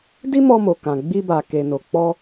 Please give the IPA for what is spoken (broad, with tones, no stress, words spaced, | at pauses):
di˦mɔ˧mo˨kã˨ ɡ͡bi˧ba˨ke˨ no˨ k͡pɔ˧